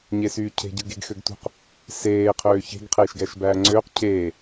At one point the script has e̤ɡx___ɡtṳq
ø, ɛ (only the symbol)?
ø